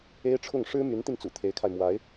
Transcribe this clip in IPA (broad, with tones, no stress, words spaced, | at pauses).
e˥ɪ̯ʈ͡ʂʰʊ˥˩ŋ ʂɻ̩˥my˧˥nt̪i˧nt͡sṵ˨˩ t̪ʰe˧˥ɪ̯kʰa˧ɪ̯ mwa˧˥ɪ̯